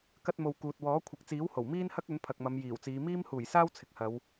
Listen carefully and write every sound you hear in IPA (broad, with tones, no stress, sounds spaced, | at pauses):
k ɐ˥ t̚ m o˧ w k uː˨ t̚ w ɔː˨˥ kʷʰ ɐ˨ k̚ t͡s iː˨˥ w h o˨˩ w m iː˥ n h ɐ˥ k̚ ɵ˨˥ n pʰ ɐ˨ k̚ m ɐ˨˧ m j iː˨˩ w t͡s iː˨˧ m iː˥ m h uː˨˩ j s aː˥ w t͡sʰ ɪ˨ k̚ h ɐ˨˧ w